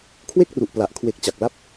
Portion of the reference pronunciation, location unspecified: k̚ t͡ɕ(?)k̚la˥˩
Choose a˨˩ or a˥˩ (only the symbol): a˨˩